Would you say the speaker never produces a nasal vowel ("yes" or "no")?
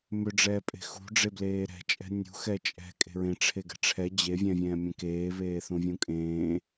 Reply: no